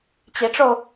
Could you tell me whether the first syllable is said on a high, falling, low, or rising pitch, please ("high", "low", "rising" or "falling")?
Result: rising